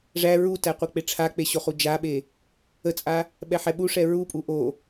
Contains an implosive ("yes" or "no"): yes